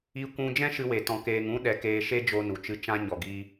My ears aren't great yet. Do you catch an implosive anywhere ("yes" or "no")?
yes